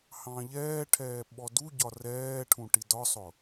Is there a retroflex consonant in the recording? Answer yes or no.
yes